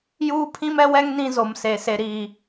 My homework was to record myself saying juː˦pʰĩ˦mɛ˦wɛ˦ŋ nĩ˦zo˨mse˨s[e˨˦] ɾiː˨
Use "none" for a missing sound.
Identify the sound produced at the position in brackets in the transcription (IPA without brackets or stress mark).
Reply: e˨